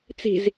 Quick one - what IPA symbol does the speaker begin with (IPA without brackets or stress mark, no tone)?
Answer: t͡s